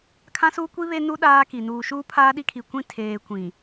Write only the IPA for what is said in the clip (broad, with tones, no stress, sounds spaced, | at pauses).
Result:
kʰ ã˦ s uː˦ kʷ i˦ β e˦ n u˦ ɗ aː˦ k i˨ n uː˨ ʃ uː˦ pʰ aː˦ ɗ i˦ kʰ i˨ kʷ ĩ˦ tʰ eː˨ kʷ ĩ˨